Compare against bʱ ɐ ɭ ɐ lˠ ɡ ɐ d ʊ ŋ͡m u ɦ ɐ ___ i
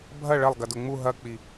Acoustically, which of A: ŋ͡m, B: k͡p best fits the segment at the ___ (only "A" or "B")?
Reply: B